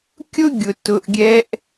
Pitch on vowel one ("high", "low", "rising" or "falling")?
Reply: high